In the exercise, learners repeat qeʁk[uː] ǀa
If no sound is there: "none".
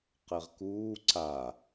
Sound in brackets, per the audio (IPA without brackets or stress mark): uː